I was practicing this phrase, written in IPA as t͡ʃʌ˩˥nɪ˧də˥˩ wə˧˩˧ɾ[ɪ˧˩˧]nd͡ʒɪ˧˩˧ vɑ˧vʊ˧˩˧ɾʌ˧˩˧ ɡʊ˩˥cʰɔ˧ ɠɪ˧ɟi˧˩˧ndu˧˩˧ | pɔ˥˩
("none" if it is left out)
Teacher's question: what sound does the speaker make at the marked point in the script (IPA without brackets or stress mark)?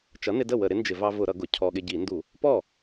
ɪ˩˥